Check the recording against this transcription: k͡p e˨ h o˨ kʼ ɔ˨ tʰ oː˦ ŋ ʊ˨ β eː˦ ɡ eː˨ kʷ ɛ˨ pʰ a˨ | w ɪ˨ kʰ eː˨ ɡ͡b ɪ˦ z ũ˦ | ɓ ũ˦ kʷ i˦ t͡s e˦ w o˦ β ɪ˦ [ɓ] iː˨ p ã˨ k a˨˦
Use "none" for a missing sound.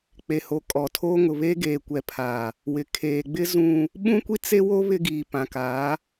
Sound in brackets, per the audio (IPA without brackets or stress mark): ɡ